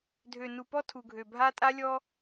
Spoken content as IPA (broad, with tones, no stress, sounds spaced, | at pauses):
dʱ ø˨ n u˨ p ɔ˦ tʰ u˨ ɡʱ ø˨ bʱ a˦ tʼ a˦ lʲ ɔ˦